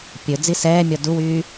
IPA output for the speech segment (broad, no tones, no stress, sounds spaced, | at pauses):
pʲ ɵ d͡z i s ɛː mʲ ɔ d u w yː